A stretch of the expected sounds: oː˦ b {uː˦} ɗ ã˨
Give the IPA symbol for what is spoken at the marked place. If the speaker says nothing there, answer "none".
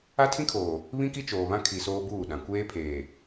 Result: uː˦˨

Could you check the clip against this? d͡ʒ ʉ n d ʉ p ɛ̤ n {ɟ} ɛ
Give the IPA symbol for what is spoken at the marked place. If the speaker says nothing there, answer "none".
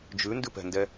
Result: d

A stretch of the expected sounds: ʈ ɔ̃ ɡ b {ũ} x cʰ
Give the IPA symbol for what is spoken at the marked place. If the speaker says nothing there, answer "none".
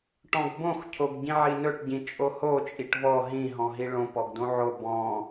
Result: õ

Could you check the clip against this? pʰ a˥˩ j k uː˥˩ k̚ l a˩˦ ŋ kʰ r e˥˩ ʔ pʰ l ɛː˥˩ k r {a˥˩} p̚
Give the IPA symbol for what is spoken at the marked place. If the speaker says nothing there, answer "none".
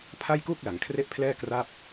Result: a˥˩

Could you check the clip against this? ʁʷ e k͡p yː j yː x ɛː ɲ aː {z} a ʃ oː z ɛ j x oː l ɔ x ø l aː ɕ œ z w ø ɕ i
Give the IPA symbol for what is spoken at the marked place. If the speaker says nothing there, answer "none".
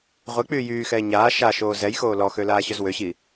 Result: ʃ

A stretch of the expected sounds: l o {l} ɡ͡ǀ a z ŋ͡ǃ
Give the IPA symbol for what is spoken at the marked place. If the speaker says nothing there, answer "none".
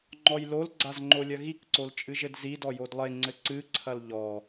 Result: l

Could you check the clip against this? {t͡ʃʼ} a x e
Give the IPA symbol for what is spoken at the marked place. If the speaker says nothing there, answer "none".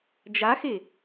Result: d͡ʒ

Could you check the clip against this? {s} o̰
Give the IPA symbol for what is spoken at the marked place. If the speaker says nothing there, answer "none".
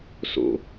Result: s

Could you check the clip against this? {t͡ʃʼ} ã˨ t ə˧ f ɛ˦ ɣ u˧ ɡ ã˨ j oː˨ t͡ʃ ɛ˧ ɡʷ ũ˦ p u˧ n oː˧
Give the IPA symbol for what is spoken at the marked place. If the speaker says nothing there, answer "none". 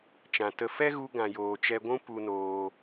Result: t͡ʃ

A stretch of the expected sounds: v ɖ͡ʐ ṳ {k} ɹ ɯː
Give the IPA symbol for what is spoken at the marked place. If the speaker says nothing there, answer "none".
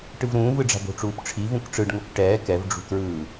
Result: k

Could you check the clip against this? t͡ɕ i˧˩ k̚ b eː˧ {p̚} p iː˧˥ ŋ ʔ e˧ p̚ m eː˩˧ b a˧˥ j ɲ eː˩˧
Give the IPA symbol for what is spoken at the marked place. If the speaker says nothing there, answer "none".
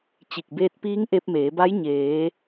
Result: t̚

